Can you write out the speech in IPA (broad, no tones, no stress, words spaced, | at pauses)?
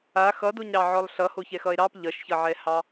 a xʌdoɲɾɑʕɔlˠ ɬʌhoçɛxʌe̯ ɾɑp ʎʌʃçʌʕɛhɑ